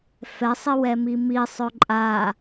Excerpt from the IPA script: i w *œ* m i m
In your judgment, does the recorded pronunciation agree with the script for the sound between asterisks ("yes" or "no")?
no